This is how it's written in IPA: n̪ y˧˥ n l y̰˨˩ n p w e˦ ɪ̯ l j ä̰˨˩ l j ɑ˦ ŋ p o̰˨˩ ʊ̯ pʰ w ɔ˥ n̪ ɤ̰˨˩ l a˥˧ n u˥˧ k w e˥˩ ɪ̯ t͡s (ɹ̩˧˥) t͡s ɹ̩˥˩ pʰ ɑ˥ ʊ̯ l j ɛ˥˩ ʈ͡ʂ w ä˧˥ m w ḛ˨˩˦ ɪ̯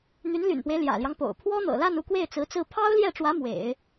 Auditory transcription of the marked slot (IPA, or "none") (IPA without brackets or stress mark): ɹ̩˧˥